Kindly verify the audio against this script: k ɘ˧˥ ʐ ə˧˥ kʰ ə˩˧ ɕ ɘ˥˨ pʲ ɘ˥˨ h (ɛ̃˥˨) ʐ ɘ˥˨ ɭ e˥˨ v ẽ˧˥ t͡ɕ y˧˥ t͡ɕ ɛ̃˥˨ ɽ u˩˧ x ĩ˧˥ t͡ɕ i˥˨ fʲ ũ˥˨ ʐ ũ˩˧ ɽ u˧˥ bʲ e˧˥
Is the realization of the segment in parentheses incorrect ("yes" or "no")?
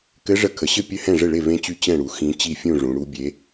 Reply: no